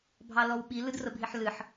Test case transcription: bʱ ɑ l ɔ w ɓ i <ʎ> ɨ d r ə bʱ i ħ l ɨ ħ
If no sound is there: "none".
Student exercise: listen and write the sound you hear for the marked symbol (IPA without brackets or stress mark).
l